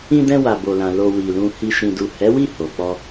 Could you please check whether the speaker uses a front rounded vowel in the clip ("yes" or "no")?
no